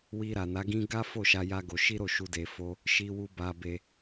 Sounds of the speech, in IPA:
wi˧ɾa˨na˨˦ɡĩ˦ ɡa˦ fo˦˨ʃa˧ ja˦ɡo˧ ʃi˦ɾo˦˨ʃu˧ de˧fo˦ | ʃi˦wu˦ ba˧ be˧

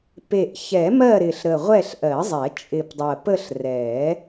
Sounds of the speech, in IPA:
pe˨˩ʔ çɛ˨˩˦mɜ˦˨ɾɪ˨˩ɬɾə˨˩ ʁʷɛ˦˨ɬʔɜ˨˩˦zˤɛ˨˩˦ t͡ʃʼɪ˨˩pdˤɜ˨˩pə˦˨ɬ rɛ˨˩˦

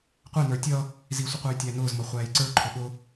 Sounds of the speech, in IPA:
qʷɛnə˞ tʲʌ | zisʷə qʷæjtʲænʊːzmʌ χʷæːjǀə˞ǃʰʊ ɠʊ

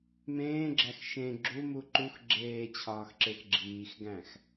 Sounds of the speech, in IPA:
mẽːɡ͡ǁæx ʃẽ ɡ͡ǁumu ǃux ɡ͡ǁeːt͡ɕʰɒːxǁex ɡ͡ǁiːxɡæ̃x

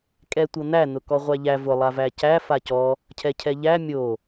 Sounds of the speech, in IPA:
kʼɛtʷɤn̪æ nʊkɔʁʷæʎæ vʊ lˠavæcæ facɔ | cʰɛcʰɛʎæ mʲo

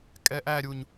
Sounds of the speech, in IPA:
kʼɛʔæɾʲuɲ

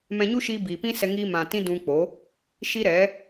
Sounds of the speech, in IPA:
mɛ̃˧ɲu˦ʃiː˧ biː˨pĩ˦sɛ˧ ŋi˧mã˨ tĩ˦dũ˧k͡po˨˦ | ʃi˦ɾɛ˨˦

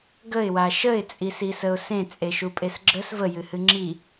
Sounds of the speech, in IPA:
ɡəɪ̯wa ʃəɪ̯t͡sʼisisəʊ̯ sẽt͡sʼeʃupʼes ɡ͡ǁəs vəjɨhɨ ŋ͡ǁi

